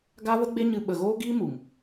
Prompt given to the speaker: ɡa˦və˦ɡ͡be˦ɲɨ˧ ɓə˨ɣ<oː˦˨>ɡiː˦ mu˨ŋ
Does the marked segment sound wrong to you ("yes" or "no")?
yes